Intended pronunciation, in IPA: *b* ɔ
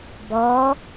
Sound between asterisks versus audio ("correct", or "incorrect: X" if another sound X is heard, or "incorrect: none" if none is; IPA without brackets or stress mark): correct